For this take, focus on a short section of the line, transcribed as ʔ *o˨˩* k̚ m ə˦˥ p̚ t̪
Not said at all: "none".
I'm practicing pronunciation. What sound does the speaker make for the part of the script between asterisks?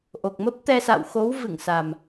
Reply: o˨˩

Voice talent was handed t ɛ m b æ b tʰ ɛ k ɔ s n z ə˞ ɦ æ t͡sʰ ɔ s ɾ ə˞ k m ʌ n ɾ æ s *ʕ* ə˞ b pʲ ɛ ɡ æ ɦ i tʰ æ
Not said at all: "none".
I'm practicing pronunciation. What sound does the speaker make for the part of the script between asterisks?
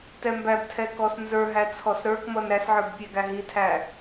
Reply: ʕ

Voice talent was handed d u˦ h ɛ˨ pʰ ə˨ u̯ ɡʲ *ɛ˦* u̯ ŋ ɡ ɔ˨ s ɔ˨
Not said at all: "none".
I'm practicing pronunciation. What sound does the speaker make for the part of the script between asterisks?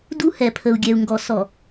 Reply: ɛ˨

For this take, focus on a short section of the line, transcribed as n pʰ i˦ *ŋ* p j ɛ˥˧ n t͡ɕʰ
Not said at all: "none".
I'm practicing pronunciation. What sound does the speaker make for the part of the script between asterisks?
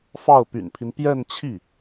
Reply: n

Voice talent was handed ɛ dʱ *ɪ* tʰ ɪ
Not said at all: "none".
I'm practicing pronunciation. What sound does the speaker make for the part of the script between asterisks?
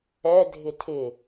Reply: ɪ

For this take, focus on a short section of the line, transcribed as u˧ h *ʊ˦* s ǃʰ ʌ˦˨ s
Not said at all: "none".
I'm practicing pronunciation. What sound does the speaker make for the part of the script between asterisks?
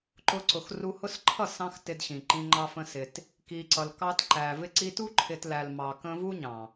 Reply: ʊ˦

